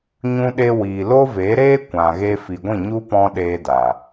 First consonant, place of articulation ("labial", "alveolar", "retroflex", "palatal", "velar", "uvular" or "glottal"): palatal